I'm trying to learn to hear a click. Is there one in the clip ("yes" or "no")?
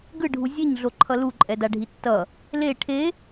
yes